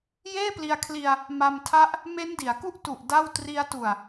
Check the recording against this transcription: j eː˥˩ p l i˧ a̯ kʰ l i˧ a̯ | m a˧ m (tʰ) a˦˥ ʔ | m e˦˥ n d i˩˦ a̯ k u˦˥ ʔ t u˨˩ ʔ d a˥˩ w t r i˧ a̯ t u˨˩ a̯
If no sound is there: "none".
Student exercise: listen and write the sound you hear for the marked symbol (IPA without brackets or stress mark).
tʰ